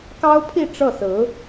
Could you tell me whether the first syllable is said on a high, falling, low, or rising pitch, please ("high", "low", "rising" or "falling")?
high